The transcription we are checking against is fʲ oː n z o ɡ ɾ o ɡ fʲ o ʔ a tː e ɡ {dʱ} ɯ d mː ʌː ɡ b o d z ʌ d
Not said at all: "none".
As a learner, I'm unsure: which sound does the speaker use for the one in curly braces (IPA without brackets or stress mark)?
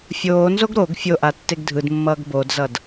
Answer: dʱ